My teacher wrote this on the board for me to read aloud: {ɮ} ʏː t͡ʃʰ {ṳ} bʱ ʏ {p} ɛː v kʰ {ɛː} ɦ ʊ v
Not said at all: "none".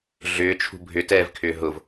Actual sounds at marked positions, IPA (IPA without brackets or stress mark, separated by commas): ɮ, ṳ, t, ʏː